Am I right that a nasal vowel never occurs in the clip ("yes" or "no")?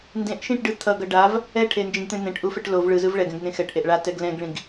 no